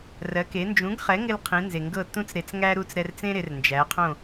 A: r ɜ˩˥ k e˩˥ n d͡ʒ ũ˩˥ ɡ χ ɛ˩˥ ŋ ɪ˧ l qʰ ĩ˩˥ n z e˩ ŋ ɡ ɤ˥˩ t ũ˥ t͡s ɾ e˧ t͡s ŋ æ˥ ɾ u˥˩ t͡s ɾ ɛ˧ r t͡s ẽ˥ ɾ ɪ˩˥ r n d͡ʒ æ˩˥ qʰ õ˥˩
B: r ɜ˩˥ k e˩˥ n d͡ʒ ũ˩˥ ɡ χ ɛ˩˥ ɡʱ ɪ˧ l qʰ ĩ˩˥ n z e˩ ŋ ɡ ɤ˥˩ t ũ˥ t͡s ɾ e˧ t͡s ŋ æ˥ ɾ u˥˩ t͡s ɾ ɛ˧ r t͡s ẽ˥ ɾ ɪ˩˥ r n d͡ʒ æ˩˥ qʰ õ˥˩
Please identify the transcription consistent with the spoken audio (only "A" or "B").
A